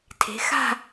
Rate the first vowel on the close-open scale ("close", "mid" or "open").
mid